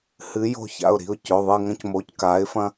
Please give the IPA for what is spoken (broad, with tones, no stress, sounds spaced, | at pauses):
h ɨ˨˦ j o̤˦˨ ç a̰˩˧˩ ʊ̯ ɾ i̤˩˧˩ ʊ̯ c ɵ˩˧˩ ðˤ ɨ˦˨ ŋ ɐ̃˦ c m oː˨˦ c k aː˨˦ ɪ̯ f ɐ̃˦